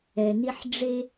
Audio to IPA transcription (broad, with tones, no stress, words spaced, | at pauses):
ɛ˨ni˦ħ ɖ͡ʐe˦